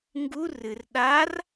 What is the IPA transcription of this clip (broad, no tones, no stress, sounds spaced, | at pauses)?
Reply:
ŋ ɡ u r ɨ r ɗ a r